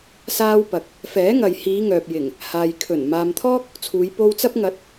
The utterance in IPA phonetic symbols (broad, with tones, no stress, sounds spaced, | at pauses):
s aː˥ w p ɐ˨ k̚ | f ɛː˨˥ ŋ ɐ˨ j h iː˨˧ ŋ œː˨ p̚ j ɪ˨˩ ŋ | h aː˨ j kʰ ɵ˨˩ n m aː˨ m t̪ʰ ɔː˥ k̚ | t͡sʰ uː˨˧ j p o˧ w t͡s ɐ˥ p̚ ŋ ɐ˨˥ t̚